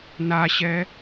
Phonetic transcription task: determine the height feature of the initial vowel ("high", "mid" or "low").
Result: low